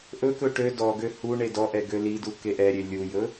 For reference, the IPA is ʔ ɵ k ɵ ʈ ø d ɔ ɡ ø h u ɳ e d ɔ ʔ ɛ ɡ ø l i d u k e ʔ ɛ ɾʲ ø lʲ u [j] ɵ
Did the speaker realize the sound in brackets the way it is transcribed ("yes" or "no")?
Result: yes